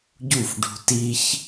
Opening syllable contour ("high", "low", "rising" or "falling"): falling